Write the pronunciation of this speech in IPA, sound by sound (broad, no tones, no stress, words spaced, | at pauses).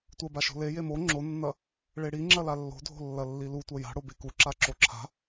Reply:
tʷɐbaʃo̤ le jemo ŋ͡ǁonːɐ | ɭeɽi ŋ͡ǁɐlalːo̤dʱo̤ lːɐlːilu tʷɐja̤ ɽobekuǁa ǁoǁʰa̤